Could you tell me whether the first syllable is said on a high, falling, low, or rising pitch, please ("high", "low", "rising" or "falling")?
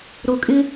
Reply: low